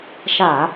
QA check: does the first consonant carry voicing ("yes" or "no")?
no